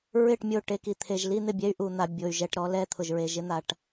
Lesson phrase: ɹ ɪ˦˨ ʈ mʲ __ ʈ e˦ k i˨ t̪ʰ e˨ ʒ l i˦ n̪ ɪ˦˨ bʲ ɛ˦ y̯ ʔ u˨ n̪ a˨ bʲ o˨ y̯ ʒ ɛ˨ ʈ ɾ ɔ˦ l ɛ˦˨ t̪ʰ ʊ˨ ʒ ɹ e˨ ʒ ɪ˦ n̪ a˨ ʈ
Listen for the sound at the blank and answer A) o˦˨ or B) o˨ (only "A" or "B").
A